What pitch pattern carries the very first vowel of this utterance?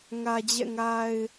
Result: low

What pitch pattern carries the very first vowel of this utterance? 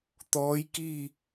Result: rising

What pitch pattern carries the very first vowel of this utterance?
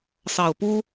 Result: low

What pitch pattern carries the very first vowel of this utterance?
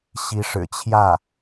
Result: rising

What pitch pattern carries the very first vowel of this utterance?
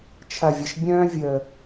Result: low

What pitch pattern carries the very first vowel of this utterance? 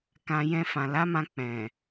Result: low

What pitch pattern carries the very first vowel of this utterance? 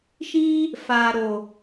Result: high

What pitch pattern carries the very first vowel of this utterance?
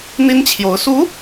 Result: high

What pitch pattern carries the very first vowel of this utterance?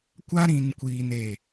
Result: high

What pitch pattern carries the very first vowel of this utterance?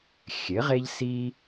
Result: rising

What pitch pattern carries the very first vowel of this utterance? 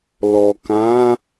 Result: low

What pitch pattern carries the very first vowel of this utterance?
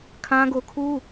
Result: high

